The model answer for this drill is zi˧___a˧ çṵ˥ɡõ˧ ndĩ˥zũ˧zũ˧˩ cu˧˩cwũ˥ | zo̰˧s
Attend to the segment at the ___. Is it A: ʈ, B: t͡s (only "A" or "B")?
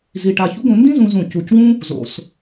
A